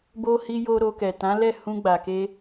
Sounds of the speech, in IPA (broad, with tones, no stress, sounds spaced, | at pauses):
b o˧ h i˧ j o˧ ɾ o˧ k ɛ˨ t ã˨˦ l ɛ˦˨ h ũ˧ ɡ͡b a˨ k e˧